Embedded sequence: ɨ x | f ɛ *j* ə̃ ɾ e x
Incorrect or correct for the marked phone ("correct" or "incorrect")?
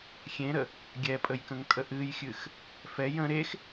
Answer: correct